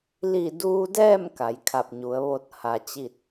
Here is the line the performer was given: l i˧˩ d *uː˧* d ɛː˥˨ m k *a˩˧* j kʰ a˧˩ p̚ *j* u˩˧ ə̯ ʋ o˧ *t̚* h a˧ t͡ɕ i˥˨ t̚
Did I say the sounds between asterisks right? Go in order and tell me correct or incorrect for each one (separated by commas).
correct, correct, incorrect, correct